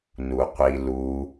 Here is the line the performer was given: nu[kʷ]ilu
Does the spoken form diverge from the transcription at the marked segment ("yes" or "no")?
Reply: yes